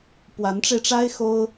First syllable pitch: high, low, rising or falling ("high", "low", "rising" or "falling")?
rising